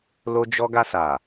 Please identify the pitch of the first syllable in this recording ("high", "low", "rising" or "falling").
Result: high